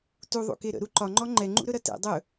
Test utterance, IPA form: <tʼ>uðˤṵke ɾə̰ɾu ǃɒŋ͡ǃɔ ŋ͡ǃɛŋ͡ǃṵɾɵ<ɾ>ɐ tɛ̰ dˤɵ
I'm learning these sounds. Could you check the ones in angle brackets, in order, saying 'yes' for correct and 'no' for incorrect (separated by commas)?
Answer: no, yes